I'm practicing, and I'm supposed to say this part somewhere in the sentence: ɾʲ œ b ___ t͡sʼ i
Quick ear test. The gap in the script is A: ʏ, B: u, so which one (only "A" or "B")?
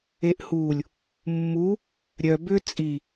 A